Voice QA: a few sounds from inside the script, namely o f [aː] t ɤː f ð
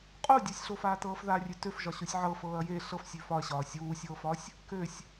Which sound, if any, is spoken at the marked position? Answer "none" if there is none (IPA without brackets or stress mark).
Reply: aː